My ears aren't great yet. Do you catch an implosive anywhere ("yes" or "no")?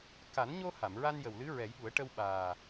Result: yes